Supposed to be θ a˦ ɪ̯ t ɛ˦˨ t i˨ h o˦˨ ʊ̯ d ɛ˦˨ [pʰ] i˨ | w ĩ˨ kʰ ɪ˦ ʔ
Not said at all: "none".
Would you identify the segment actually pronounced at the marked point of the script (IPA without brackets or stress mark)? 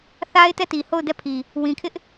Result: pʰ